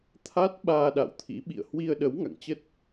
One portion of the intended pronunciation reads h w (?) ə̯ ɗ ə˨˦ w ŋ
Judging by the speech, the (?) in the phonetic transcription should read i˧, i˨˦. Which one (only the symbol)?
i˧